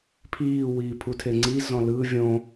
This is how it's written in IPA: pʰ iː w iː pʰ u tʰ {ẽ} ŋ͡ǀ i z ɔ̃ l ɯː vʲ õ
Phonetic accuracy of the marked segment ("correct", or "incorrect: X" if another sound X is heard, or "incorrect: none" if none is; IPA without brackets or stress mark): incorrect: e